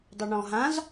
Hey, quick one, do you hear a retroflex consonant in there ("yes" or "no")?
yes